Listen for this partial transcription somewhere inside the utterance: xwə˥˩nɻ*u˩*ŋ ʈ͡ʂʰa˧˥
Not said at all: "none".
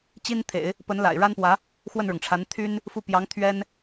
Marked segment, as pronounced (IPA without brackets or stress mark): ʊ˩